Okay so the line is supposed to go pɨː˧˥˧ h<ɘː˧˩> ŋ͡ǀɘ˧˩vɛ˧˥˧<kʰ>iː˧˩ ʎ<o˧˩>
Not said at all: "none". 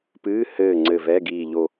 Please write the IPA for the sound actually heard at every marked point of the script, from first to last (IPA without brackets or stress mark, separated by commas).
ɘː˧˩, ɡ, o˧˩